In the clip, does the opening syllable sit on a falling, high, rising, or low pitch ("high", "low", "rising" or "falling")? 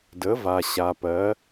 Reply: rising